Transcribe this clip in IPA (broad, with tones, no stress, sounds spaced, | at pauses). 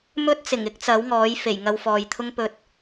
m ɵ˥ t̚ t͡s ɪ˨˩ ŋ ɪ˥ k̚ t͡s ɐ˨˥ w ŋ ɔː˨˥ j f e˨˩ j ŋ ɐ˧ w f ɔː˨ j t̪ʰ ʊ˥ ŋ p ɵ˧ t̚